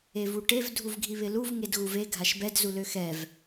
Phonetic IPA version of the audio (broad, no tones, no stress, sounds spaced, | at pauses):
e v u ʈ e v dʱ u v ɡʱ i β ɪ l u v ŋ e d ɣ u v e ɡʱ a ʃ b ɛ d z u l ø x ɛ v